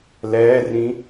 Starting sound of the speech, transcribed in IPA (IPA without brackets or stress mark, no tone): l